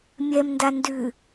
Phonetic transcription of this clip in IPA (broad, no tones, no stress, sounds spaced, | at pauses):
mʲ ɛ m n d a n d ʉ